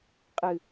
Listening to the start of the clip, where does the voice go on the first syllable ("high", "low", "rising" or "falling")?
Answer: low